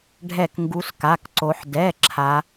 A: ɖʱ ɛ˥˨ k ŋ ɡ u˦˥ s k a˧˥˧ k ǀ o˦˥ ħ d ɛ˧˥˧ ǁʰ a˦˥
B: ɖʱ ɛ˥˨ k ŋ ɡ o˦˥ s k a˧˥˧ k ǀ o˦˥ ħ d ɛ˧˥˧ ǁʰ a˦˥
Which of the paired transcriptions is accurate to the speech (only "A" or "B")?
A